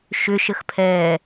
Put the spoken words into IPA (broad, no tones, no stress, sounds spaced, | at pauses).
ʃ ʏ ʃ ə x pʰ ɛː